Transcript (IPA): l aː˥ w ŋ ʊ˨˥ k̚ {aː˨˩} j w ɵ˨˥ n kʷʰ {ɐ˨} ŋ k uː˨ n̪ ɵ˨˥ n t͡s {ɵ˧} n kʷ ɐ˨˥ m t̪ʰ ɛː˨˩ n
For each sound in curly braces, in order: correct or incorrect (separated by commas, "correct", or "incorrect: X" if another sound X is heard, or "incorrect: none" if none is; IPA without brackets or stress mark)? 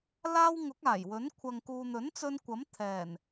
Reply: correct, correct, correct